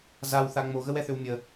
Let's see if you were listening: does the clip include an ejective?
no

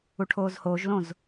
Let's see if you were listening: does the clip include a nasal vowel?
yes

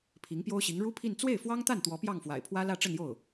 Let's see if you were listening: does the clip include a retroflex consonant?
yes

